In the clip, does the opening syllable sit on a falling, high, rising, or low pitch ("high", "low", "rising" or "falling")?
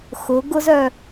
rising